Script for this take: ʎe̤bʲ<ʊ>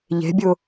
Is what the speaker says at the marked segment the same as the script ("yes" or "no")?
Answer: yes